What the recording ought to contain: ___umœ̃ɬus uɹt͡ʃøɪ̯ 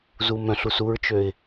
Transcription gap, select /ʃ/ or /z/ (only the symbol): z